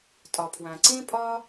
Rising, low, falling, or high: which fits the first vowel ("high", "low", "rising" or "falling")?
low